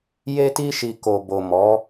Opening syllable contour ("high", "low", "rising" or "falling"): high